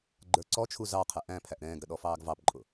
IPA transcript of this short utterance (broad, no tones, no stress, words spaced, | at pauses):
ɡ͡ǃə˞ǀɔt͡ʃʰu zɑqʰɛ ʔæ̃ pʰæʔɾɛ̃ːɡɾə ɗɔfɑːɡvɑpǃʼʊ